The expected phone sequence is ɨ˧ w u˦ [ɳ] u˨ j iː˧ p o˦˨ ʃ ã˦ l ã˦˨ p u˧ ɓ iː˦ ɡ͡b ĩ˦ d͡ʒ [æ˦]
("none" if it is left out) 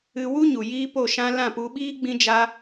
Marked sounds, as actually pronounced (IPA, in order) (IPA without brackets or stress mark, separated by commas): ɲ, a˦